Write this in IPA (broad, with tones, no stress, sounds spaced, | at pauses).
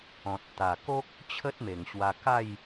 ɔ̃˨ t̚ t̪ a˨˩ k o˦ k̚ | t͡ɕʰ ə˦ t̚ m e˨˩ ŋ ɕ w a˧ k a˥˧ j